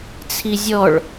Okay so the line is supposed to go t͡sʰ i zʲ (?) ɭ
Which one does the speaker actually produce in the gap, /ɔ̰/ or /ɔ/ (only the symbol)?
ɔ